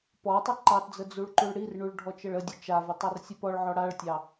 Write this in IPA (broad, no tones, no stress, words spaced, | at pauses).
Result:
pɔtˤə ǃɑtd͡zə d͡zuɭǃuɭɽirɳuɭ ɖʱɔt͡ʃəɭədʲə t͡ʃavə tˤɑrsʲəpɔɭʕɔ ɽaɭtʲɑ